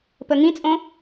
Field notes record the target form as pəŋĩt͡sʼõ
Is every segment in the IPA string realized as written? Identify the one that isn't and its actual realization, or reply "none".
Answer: none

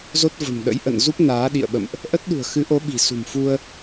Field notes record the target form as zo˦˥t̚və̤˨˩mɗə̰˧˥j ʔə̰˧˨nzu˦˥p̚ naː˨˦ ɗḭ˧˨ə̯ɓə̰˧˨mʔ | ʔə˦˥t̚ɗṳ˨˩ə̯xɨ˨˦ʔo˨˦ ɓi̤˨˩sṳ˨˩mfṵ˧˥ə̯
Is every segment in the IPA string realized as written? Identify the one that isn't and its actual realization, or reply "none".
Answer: ṵ˧˥ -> u˧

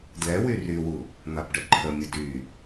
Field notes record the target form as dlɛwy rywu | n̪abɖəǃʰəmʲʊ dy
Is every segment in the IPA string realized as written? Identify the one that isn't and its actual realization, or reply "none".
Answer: none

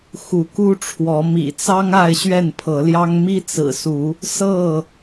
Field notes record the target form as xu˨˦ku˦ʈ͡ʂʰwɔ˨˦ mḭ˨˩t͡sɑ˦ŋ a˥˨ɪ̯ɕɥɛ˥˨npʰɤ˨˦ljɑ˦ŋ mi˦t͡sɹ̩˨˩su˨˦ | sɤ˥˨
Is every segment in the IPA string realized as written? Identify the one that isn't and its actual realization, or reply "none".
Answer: none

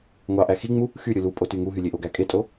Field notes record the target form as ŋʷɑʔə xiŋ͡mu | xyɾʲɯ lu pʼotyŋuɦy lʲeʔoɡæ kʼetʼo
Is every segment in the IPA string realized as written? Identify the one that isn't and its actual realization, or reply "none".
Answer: ə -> æ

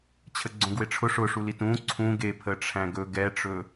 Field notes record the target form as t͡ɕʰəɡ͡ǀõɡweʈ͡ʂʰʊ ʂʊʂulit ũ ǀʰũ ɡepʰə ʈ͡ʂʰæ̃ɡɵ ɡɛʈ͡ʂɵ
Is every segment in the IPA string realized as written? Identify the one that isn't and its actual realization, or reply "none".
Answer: none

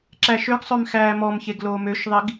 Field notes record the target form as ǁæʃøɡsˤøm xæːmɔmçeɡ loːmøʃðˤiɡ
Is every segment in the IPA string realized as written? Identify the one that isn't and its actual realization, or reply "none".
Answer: none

